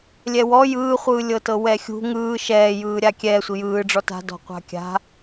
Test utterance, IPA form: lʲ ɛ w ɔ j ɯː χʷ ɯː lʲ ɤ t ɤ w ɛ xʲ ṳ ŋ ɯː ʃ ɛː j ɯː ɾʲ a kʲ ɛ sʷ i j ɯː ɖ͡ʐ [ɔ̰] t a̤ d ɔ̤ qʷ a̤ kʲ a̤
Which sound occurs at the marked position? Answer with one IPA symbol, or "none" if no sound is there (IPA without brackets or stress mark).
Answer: ɔ